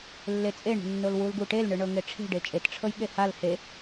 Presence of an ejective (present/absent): present